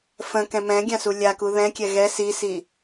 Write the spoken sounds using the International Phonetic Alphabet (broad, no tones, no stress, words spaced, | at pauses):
fə̃kɛ̃ mɛ̃ɡʲãsu lʲaku ðɛ̃kʲɛ ɣɛ sisi